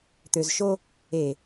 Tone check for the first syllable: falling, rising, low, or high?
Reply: low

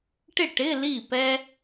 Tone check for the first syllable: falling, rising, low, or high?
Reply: falling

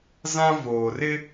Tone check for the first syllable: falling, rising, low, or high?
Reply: high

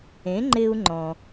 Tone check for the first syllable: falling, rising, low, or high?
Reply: rising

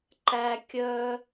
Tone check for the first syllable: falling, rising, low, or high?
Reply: high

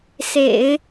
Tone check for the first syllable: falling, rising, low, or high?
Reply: low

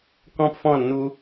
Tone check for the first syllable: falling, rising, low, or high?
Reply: high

